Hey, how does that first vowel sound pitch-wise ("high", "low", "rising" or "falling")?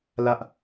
high